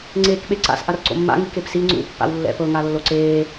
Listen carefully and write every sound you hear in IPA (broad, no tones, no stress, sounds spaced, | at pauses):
ŋ͡ǀ eː k ɓ e ǀ a̰ s ʔ a r ǀ o̰ mː a̰ ŋ i k e p s i ŋ͡ǀ ṵ pː a̰ w lː ɛ̰ p ɤ ŋ a lː o ǀ eː